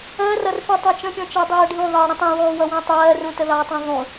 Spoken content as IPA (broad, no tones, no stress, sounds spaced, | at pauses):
ɜ r ʌ r f i tˤ ɜ t͡ʃ ə̃ pʲ ɔ̃ t͡ʃ ɜ dˤ ɜː ɖʱ ũ ðˤ ɜː ɽ ĩ tˤ ĩ w ɔː w ʌ w ɔ̃ tˤ ɜː r ũ t ə ð ɑ tˤ ĩ ðˤ ũ